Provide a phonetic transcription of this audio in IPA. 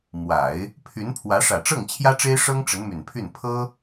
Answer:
m w a˨˩˦ ɪ̯ | pʰ y˧˥ n pʰ w ä˧˥ ʂ ä˨˩ ʈ͡ʂ ɤ˥˩ ŋ t͡ɕʰ j ä˥ ʈ͡ʂ e˥ ɪ̯ ʂ ɤ˥ ŋ ʈ͡ʂ ə˧˥ n m y˨˩ n pʰ y˥˩ n pʰ ɤ˥

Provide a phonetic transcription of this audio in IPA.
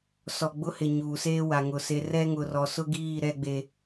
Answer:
s ɔ˨ ɡ͡b ʊ˦ h ɪ˨ ɲ uː˨ s eː˦ w a˨ ŋ ʊ˨ s e˨ r ɛ˦ ŋ ʊ˨ r ɔ˨ s ʊ˦ ɡ iː˦˨ ɾ ɛ˦ ɡ͡b e˦

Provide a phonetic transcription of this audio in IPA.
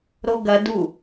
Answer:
ɾ o ɡ ɐ d u

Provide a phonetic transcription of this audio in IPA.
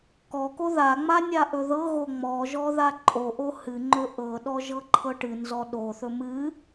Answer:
k ɔ k o ð a ŋ͡m a nʲ a ʔ ɵ ð ɤ ɣ o ŋ͡m ɔ ʒ ɔ ð a ǃʼ o ʔ o h ɨ ŋ͡ǃ ɵ ʔ ɤ ɗ ɔ ʒ ɤ ǃʰ ɤ ʈ ɨ n z ɔ ɗ o θ ɵ m ɨ

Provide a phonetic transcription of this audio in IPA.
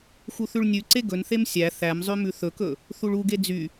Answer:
x u θ ʉ ɭ nʲ ʉ ǀ e ɡ ɵ n θ e m sʲ æ θ æ m zˤ ø m ʉ θ ɵ k ɵ | θ u ɭ u ɡ e d͡z y

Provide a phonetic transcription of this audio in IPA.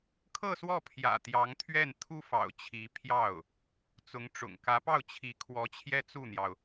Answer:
kʰ ɤ˥˧ s w ɔ˥˩ pʰ j ä̰˨˩ t̪ j ɑ˧˥ ŋ t̪ʰ ɥ ɛ˥˩ n t̪ʰ u˥ f ɑ̰˨˩ ʊ̯ t͡ɕʰ i˧˥ pʰ j ɑ˥˩ ʊ̯ | t͡s ʊ˧˥ ŋ ʈ͡ʂ ʊ̰˨˩ ŋ k ä˧˥ p ɑ˥˩ ʊ̯ t͡ɕʰ i˧˥ kʰ w ɔ˧˥ t͡ɕʰ j ɛ˥ t͡s u˥˩ n̪ j ɑ˩ ʊ̯

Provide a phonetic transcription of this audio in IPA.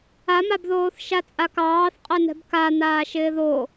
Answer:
a m a b ð oː θ ʃ a t͡sʼ a k ɑː θ qʼ ɛ n ɛ̤ b k a n̪ aː ʃ ɪː ð o

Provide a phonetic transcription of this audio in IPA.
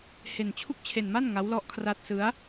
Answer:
h e˧ n t͡ɕʰ u˥˩ k̚ t͡ɕʰ e˧ n m a˥˩ n ŋ a˦˥ w l ɔ˦˥ ʔ kʰ r a˦˥ t̚ s ɯ˦˥ a̯

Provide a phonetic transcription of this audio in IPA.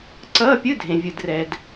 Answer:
ǀ ʌː˧˥˧ pʲ ɯ˧˥˧ dʱ ẽ˩ vʲ ɯ˩ d r ɛ˩ d

